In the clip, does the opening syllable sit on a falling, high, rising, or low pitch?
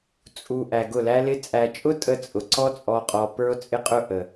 low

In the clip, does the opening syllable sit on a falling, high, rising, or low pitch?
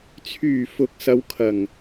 low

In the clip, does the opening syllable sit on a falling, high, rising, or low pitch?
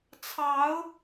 rising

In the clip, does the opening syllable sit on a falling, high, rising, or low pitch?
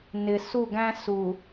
low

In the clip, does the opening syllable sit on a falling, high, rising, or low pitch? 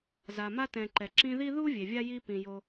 low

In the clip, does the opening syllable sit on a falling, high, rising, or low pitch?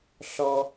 high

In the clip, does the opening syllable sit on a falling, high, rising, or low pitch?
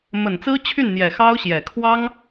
low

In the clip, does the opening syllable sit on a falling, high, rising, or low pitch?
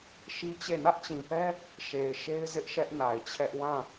high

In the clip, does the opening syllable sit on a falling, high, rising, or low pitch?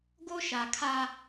high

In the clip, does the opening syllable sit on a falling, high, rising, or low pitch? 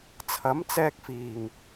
rising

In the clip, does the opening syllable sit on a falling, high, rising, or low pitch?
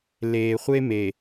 low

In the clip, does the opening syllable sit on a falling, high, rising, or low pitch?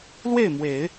falling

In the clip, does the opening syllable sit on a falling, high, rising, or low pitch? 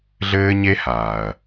high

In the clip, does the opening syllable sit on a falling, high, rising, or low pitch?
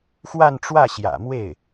falling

